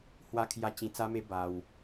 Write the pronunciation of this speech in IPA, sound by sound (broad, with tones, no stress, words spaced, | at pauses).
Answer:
hwa˧kʰja˧ t͡ɕĩ˧t͡sa˦me˦ ba˧w